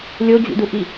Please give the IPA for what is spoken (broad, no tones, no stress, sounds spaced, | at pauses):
lʲ o d͡ʑ ṵ d u ʔ i